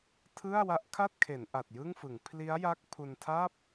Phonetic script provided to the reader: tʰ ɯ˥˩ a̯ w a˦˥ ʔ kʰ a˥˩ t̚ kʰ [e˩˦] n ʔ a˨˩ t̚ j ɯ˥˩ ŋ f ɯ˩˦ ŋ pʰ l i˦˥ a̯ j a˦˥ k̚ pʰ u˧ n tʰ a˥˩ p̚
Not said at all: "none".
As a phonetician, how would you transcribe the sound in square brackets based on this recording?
e˩˦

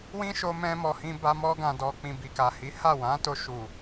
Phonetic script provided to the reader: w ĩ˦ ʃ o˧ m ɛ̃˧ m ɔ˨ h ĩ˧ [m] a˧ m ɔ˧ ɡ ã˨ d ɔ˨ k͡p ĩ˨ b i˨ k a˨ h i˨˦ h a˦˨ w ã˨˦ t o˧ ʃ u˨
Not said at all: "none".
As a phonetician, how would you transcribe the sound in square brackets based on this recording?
b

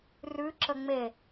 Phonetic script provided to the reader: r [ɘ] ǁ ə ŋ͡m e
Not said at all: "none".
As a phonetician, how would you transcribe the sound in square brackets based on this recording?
ʉ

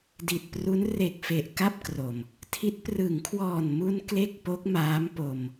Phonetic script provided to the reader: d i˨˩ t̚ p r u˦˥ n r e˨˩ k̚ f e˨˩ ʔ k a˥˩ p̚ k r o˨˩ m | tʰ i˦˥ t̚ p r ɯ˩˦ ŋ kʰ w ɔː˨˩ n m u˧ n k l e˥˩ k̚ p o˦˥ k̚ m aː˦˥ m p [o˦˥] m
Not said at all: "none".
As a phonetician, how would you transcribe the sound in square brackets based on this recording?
o˧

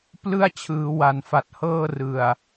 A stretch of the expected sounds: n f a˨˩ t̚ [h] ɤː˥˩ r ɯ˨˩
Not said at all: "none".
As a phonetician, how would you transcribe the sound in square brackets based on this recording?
h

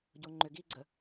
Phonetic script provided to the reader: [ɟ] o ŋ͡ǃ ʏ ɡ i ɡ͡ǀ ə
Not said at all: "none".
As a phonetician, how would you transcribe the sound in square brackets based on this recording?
ɟ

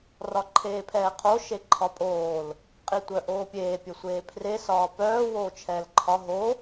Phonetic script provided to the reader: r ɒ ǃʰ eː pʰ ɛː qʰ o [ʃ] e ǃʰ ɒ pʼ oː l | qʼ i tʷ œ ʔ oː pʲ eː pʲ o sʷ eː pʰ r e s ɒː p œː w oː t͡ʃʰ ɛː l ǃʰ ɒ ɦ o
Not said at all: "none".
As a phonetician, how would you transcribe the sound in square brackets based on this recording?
ʃ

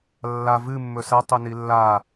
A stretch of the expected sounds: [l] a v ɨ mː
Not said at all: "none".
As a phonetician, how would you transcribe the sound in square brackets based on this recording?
lː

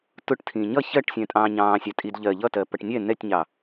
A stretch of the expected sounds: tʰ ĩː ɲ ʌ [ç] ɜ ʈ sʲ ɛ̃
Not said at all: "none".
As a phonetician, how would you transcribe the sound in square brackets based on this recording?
ç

